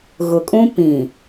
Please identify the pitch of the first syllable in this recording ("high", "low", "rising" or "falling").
low